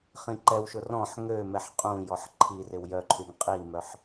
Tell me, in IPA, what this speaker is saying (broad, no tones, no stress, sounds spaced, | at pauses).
χ ĩ ǃ ɛ w ʃ ʊ r ɔ̃ ħ ŋ ø m ɛ ħ qʼ ũ j ɔ ħ ǃʰ i r ɪ w j œ ǃʰ y ŋ qʼ i m œ ħ